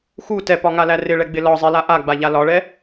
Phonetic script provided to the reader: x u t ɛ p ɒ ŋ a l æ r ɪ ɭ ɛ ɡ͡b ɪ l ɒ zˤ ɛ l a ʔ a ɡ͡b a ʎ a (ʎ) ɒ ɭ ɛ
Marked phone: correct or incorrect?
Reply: incorrect: l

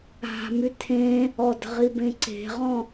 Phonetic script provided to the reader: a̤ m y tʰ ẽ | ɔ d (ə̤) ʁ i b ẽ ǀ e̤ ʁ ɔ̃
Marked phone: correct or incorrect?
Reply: correct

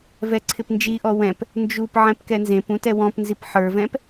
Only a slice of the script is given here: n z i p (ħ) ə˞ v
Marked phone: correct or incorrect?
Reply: correct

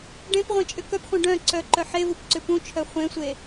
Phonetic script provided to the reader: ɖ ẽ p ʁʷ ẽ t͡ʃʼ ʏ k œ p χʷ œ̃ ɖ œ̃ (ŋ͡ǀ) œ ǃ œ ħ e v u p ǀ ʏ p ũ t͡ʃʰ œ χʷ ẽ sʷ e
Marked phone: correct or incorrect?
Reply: incorrect: ǀ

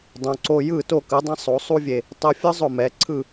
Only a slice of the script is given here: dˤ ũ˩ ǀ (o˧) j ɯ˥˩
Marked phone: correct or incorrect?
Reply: correct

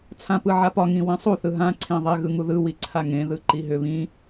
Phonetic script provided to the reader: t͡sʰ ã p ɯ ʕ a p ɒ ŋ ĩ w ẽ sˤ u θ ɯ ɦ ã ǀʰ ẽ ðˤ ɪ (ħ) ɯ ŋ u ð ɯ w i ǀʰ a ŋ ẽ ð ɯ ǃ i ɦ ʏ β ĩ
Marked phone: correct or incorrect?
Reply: incorrect: ɣ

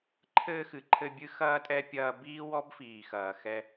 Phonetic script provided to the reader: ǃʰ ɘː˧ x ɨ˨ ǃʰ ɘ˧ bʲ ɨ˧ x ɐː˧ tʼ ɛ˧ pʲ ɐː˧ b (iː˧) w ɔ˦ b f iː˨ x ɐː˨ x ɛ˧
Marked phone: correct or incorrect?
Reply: incorrect: iː˦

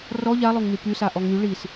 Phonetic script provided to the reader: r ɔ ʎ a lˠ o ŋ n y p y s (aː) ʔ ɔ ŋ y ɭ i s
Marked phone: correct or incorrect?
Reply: incorrect: a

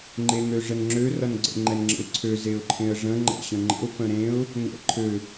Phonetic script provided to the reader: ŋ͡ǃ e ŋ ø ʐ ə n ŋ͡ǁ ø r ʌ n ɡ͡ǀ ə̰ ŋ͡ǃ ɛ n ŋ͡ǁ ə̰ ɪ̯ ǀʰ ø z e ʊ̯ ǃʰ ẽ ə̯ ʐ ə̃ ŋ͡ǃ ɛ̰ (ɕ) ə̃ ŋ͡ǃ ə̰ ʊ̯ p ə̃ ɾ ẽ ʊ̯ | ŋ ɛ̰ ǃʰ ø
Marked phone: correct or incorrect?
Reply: correct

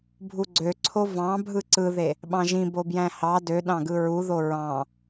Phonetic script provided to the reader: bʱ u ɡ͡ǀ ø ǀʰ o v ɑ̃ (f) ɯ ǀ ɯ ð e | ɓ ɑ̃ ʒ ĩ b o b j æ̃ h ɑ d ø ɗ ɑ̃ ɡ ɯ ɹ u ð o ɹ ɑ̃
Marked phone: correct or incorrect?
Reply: incorrect: bʱ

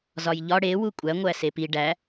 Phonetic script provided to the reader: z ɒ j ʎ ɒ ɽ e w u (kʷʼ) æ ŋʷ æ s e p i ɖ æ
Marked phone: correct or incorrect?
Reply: correct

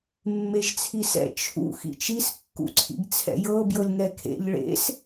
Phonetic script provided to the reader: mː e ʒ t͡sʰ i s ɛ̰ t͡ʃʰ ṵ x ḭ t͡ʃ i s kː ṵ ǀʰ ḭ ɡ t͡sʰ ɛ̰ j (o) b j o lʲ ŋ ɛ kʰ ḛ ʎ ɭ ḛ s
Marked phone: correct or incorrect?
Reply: incorrect: ɤ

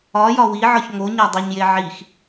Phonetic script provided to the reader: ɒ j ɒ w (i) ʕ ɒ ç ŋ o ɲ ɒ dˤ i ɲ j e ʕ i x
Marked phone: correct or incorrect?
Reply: correct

